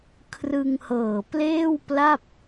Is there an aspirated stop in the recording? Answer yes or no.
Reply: yes